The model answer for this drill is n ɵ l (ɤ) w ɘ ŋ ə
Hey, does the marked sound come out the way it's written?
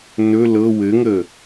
yes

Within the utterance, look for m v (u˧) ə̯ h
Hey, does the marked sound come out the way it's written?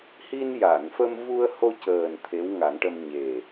yes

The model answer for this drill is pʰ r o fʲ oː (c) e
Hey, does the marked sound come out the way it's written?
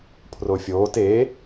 no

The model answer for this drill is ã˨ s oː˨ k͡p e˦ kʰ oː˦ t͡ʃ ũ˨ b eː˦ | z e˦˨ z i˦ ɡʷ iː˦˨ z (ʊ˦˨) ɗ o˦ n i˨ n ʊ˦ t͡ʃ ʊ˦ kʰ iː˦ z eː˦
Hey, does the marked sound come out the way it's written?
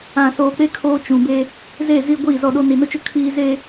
no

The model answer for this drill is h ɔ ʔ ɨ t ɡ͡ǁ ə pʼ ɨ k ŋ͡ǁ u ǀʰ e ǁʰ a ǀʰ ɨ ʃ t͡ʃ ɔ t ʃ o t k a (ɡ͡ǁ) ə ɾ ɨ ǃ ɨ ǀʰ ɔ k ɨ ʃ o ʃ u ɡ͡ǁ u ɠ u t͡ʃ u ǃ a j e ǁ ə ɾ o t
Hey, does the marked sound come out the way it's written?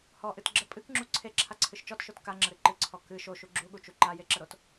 no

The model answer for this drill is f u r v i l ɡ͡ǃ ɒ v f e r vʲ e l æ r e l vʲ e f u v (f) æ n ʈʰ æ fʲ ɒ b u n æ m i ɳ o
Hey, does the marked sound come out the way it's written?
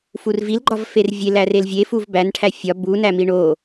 no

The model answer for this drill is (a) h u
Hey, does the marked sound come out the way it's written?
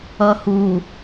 no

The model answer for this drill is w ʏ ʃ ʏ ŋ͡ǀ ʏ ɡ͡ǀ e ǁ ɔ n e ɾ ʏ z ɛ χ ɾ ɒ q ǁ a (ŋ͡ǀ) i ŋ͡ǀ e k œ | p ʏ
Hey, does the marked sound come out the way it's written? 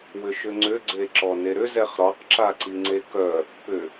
no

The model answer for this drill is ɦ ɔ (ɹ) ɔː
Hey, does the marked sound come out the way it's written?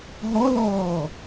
no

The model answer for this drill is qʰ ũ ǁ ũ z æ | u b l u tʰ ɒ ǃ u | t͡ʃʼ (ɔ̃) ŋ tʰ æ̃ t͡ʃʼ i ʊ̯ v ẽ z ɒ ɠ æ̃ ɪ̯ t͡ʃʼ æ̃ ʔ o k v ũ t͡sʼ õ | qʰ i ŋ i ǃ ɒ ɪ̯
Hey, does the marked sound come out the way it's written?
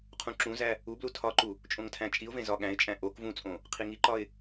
no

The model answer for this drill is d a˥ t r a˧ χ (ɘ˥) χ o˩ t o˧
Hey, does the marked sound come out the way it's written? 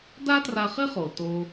yes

